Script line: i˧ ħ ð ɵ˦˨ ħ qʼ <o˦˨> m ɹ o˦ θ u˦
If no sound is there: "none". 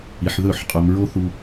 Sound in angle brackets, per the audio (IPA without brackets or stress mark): o˧